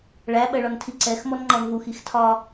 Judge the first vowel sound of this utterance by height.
low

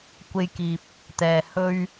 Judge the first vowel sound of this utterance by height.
mid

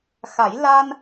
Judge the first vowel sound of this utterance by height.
low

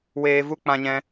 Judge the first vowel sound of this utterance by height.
mid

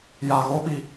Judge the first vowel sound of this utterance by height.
low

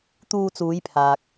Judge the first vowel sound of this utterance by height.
high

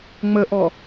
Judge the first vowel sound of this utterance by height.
mid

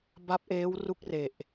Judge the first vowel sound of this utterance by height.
low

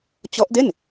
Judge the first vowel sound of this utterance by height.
mid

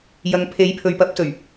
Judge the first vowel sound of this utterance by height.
low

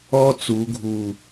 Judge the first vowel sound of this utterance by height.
mid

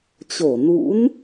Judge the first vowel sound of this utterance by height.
mid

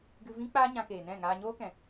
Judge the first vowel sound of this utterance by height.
high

